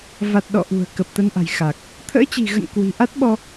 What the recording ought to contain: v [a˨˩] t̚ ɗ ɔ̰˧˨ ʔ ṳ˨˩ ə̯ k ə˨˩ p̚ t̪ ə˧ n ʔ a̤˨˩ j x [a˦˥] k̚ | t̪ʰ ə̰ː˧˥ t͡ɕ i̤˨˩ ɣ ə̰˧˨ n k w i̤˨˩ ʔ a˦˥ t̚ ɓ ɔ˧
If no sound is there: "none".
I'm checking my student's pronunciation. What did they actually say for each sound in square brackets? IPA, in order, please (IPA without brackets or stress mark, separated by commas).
a˨˩, a˨˩